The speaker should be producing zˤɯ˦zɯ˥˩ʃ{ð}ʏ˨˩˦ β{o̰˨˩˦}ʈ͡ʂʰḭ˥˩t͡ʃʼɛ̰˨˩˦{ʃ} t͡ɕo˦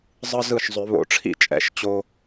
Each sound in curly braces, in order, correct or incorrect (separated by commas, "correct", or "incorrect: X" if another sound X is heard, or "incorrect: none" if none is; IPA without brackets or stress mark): incorrect: zˤ, correct, correct